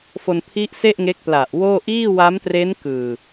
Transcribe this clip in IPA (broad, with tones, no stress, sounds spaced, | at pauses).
f o˧ n pʰ i˦˥ ʔ s e˥˩ ʔ ŋ e˦˥ k̚ p l a˨˩ ʔ w oː˥˩ ʔ iː˥˩ w a˦˥ m t r e˦˥ n k ɯː˨˩